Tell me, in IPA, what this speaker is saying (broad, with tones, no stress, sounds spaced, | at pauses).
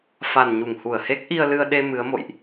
f a˨˩ n ɲ u˧˩ ŋ h u˧˩ ə̯ h e˦˥ k̚ ʔ i˧ ə̯ l ɨ˧ ə̯ ɗ e˧ m ɨ˨˦ ə̯ m o̰˧˨ j ʔ